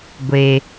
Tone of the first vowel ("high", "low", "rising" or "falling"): low